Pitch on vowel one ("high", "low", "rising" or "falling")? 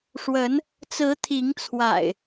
rising